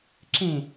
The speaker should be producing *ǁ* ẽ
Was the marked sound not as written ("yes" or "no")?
no